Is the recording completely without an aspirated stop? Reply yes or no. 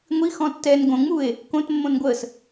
yes